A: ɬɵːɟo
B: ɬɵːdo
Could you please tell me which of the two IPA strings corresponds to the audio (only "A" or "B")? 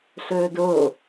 B